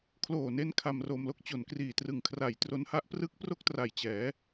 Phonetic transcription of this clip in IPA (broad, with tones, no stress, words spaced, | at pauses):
kʰloː˨˩ne˧n kʰa˧mro˧mlo˦˥k̚ t͡ɕo˨˩nkriː˨˩ trɯ˨˩ŋkʰra˨˩j tro˦˥nha˦˥ʔ prɯ˦˥k̚ pro˥˩k̚tra˨˩jt͡ɕɛː˩˦